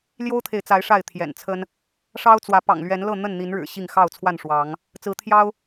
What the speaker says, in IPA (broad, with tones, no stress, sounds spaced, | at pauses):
l j o˦ ʊ̯ t̪ʰ e˨ ɪ̯ t͡s a˨˦ ɪ̯ ʂ a˥˨ ɪ̯ t̪ʰ j ɛ̰˨˩ n t͡sʰ ə˦ n | ʂ ɑ˦ ʊ̯ t͡s w ä˨˦ p ɑ̰˨˩ ŋ l ɥ ɛ˨˦ n l ɤ˥˨ n̪ ə˥˨ n n̪ i˨˦ n ɻ ɻ̩˨˩ ɕ i˥˨ ŋ x ɑ˥˨ ʊ̯ t͡sʰ w a˥˨ n ʂ w ɑ˨˦ ŋ | t͡s ɹ̩˨˦ t̪ʰ j ɑ˦ ʊ̯